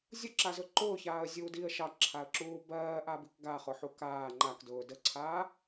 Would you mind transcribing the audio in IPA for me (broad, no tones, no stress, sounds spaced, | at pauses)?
zʲ ʊ ǁ a z ʊ ǃ ʊː ç aː ə̯ zʲ uː d i ə̯ ʃ ɑ ǁʰ a ə̯ ǁ uː b ɜː ʔ a b i k ɡ a χ ʊ ħ u k aː ŋ͡ǃ a k d ʊː d ə ǀʰ aː